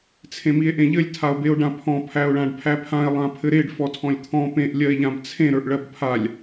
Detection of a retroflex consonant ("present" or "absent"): present